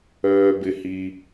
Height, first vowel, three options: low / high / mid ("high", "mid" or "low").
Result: mid